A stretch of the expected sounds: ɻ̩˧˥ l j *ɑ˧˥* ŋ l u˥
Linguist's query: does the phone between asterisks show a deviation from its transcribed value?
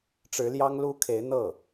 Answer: yes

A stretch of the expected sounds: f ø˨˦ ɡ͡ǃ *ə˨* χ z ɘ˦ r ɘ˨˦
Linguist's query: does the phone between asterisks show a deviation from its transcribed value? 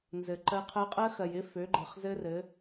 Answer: no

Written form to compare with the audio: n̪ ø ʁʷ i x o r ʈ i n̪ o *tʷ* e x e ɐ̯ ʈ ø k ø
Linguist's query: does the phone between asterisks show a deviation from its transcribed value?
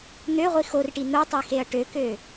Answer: yes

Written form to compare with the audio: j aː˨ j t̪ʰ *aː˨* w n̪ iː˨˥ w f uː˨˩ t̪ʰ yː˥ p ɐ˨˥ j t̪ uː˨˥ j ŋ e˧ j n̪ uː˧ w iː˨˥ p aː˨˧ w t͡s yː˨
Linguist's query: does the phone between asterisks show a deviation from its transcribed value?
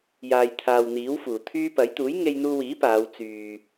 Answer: no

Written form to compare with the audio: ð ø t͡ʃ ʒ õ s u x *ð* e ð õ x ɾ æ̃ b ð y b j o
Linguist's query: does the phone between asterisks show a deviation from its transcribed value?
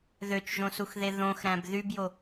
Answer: no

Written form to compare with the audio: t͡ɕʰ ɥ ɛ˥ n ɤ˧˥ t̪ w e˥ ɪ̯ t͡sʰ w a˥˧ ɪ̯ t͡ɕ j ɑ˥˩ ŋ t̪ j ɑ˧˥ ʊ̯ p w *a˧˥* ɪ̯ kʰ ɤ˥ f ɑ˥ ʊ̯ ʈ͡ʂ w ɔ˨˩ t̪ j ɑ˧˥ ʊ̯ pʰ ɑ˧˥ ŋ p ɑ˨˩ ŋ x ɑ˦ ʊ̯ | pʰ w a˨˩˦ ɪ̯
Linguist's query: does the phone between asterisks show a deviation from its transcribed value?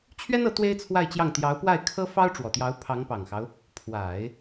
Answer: yes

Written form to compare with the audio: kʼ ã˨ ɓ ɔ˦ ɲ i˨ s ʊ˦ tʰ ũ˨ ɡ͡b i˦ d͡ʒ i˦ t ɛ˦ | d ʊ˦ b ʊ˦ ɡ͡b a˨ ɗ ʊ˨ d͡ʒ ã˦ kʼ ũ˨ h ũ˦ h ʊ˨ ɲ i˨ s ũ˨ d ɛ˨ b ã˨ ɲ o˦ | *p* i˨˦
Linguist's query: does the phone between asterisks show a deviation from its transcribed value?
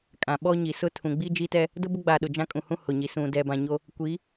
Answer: yes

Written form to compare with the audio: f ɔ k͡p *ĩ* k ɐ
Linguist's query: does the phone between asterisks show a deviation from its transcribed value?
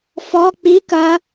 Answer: yes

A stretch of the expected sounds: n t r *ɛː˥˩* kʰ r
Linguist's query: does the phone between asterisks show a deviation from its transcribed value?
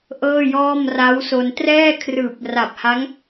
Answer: no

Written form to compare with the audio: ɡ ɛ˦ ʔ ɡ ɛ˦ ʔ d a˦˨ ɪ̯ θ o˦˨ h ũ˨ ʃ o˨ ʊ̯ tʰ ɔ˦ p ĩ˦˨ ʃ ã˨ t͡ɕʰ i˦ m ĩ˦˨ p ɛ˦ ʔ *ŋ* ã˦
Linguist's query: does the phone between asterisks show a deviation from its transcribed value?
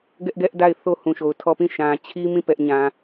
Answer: yes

